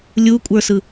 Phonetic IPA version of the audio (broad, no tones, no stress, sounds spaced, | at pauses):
lʲ u kʷʼ ə˞ s ɯ